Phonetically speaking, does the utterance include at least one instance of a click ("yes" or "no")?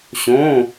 no